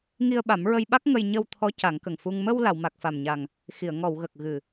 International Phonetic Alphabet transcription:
ŋ i˧ ə̯ ɓ a˨˩˦ m ɹ ə˧ j ɓ a˦˥ k̚ ŋ ə˧ j ɲ ə˧ w t̪ʰ ɔ˧˥ c a˨˩˦ ŋ k ə˨˩ ŋ f u˧ ŋ m ə˧ w l a˨˩˨ w m a˨˩ k̚ f a˨˩ m ɲ a˨˩ ŋ | x i˨˩˨ ə̯ ŋ ɔ˨˩˨ w ɣ ə˨˩ k̚ ɣ ɨ˨˩

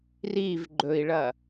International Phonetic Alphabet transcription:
r i v ɡ͡ǃ ɵ i̯ ɭ ɐ

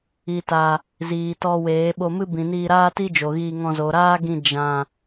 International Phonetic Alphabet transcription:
i˨ t a˨ | z iː˨ t ɔ˧ w eː˨˦ ɓ o˧ m ɨ˦ b ĩ˨ n iː˧ ɾ aː˦ t i˦ d͡ʒ o˨ ɣ iː˧ ŋ ɔ̃˧ z o˨ ɾ aː˦ ɡ ĩ˧ d͡ʒ ã˧

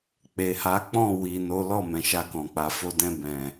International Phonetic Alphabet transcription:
k͡p e˨ h a˨˦ k͡p ɔ̃˦˨ w i˨ n o˨˦ l ɔ˦˨ m ɛ̃˨ ʃ a˧ k ɔ̃˨ k͡p a˨ f o˧ d ɛ̃˧ b ɛ̃˨

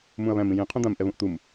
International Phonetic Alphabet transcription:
m ũ ɐ̯ β æ̃ m ĩ j ĩ qʰ ũ d̪ ã m ʔ ɛ β ũ ʔ t̪ u m

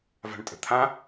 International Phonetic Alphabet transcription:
v a̤ ɳ tʼ ə̤ t̪ʰ ã

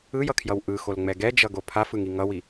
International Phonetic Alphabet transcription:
ɯ j ʌ kʰ j ʌ w ʔ ɯ x o l ŋ͡m ɛ ɡ ɛ d͡ʒ ʌ ɡ o pʰ a f ɯ ŋ i ŋ ʌ w i

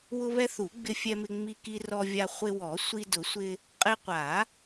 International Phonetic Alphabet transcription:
w ʊ˧ β ɛ˧ θ u˨˩˦ ɡ͡b ɪ˧ fʲ ɛ˧ m ɪ˧ ŋ͡m i˧ k i˧ r ɔ˧ vʲ a˧ χʷ ɪ˧ w ɔ˨˩˦ sʷ i˧ d ʊ˨˩˦ sʷ ɪ˧ | qʼ ɪ˧ qʷ a˨˩˦

